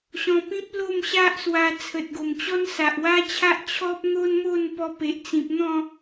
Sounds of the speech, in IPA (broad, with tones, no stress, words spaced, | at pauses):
ɕɔ̃˧pĩ˦p̚ lo˥˧mɕa˦ʔswa˧ t͡sʰə˨t̚ɡo˨˩mt͡ɕɔ˦n sa˨ʔwa˦t͡ɕʰa˦ʔ t͡ɕʰɔ˦p̚n̪o˦nmo˥˧n pɔ˧pe˨ʔt͡sĩ˨p̚n̪ɔ̃˥˧